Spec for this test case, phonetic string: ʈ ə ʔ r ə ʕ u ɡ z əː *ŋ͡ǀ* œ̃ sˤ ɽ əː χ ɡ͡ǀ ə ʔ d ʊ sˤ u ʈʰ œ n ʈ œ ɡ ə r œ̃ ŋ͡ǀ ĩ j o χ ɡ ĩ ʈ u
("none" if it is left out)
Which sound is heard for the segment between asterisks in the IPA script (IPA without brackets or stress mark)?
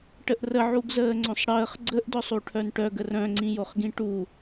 ŋ͡ǀ